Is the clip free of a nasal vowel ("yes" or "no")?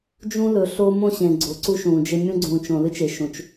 no